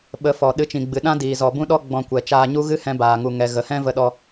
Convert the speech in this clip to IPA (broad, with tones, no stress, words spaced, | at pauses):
ɓə˨˦fɔ˨ ɗɨ˧t͡ʃĩ˨ɡ͡bɨ˨ɗã˦ diː˨zɔ˨bũ˦ɗɔ˦ ɡ͡bɔ̃˧kʷɛ˨ t͡ʃaː˧ɲu˦ɣɨ˦ hɛ̃˧baː˨ŋu˨ŋɛ˨ ɣə˨hɛ̃˦və˧ɗɔ˧